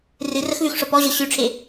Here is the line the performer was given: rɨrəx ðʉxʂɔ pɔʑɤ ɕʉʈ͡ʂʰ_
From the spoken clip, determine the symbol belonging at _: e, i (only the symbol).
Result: e